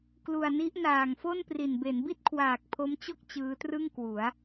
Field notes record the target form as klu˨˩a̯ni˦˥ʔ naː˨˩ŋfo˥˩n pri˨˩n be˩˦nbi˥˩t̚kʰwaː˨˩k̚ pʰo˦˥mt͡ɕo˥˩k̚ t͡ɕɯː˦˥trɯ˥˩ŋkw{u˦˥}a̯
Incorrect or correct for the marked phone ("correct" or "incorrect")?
incorrect